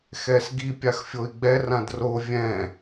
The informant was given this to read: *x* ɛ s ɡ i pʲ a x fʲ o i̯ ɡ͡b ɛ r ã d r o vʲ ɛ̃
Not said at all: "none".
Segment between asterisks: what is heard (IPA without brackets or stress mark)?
x